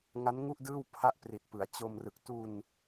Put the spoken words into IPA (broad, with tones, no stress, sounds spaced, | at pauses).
ŋ a˦˥ n ŋ u˥˩ ʔ d ɯː˥˩ w pʰ a˥˩ ʔ p r i˨˩ t̚ p ɯ˩˦ a̯ t͡ɕ o˧ m r ɯ˨˩ k̚ t u˧ n